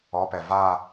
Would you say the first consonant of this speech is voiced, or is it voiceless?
voiceless